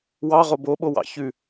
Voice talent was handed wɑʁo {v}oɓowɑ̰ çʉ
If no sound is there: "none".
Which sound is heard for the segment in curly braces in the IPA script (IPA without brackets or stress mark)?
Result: b